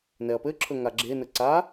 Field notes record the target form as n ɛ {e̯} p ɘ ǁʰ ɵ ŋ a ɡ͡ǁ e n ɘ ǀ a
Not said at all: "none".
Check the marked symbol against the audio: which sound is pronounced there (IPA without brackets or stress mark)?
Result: ɐ̯